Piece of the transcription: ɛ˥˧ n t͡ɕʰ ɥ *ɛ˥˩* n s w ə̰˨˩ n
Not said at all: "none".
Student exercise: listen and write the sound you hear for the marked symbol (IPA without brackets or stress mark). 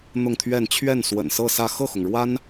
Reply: ɛ˥˩